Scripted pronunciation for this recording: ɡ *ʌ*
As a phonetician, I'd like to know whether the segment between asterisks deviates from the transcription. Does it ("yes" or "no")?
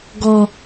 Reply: yes